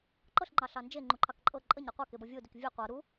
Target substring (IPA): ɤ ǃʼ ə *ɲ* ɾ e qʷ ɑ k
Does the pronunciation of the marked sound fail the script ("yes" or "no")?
no